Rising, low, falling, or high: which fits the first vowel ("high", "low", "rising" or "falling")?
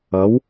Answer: rising